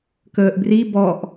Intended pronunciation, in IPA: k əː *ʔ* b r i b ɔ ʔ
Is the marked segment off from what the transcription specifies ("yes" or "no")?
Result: no